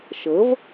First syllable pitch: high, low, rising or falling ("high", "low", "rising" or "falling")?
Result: rising